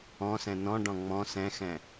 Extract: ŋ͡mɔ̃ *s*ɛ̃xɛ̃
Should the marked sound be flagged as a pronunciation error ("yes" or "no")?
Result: no